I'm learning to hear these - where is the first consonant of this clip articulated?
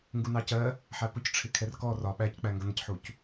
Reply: velum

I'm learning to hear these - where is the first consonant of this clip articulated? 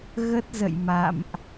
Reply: velum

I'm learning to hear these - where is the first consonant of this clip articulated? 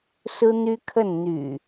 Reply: tongue tip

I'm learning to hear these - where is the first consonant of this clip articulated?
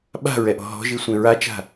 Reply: lips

